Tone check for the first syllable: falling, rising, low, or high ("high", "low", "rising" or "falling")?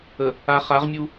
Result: low